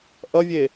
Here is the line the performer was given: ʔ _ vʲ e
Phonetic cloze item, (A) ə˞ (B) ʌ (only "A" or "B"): B